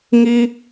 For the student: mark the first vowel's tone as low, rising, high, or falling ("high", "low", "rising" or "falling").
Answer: high